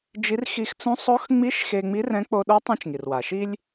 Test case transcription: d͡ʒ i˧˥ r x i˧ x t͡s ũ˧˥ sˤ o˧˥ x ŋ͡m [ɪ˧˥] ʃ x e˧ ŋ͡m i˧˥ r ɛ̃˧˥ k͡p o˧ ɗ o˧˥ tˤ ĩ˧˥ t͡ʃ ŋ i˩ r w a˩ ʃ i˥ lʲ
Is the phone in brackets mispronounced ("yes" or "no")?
yes